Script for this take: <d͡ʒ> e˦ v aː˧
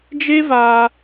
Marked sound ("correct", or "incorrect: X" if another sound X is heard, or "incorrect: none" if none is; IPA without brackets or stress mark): correct